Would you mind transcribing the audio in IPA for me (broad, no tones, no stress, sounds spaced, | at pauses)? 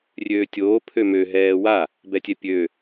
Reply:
rʲ øː tʲ oː pʰ ø m ø ɦ ɛː w a | b ɛ tʲ ɛ pʲ ø